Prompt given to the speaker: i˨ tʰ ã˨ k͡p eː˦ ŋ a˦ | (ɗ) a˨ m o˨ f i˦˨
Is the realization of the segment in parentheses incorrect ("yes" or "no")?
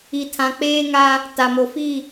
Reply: yes